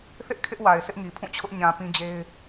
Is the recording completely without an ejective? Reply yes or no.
yes